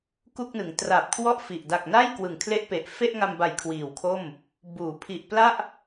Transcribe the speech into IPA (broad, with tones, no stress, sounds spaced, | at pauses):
k u˥˩ k̚ n ɯ˩˦ ŋ t r a˨˩ p̚ kʰ w ɔ˥˩ ʔ f i˨˩ ʔ d a˨˩ k̚ n a˥˩ j k w ɯ˨˩ ŋ kʰ l e˥˩ ʔ p e˨˩ ʔ f e˥˩ ʔ ŋ a˧ m b a˨˩ j kʰ w iː˨˩ w kʰ o˥˩ m | b uː˩˦ pʰ i˨˩ ʔ p l a˥˩ ʔ